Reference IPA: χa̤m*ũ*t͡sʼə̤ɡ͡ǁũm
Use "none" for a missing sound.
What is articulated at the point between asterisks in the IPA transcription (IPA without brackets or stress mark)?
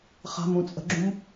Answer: ũ